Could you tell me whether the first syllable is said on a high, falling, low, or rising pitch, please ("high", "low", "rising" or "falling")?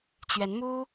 rising